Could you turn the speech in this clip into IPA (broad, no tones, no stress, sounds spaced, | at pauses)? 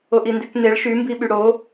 o ʔ i n d y k n e ɭ ʃ y m b i ɓ y ɽ o